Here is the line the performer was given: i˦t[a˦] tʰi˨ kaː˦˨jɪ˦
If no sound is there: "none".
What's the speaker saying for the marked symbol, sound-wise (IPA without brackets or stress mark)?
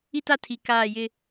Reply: a˦